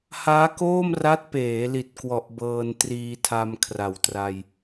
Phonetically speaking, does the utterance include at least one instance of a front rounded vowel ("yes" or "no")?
no